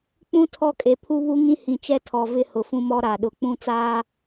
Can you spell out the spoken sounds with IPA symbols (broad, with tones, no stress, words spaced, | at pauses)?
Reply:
k͡pũ˦ tʰɔ˦kʼe˨ pʰu˦βu˦ŋĩ˦ hĩ˨t͡ʃɛ˦tʰɔ˨ vɪ˦hʊ˨fũ˦mɔ˦ ɾa˨ɗʊ˨k͡pũ˦ t͡saː˦